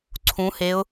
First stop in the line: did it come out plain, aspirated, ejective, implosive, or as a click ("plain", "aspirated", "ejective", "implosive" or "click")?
click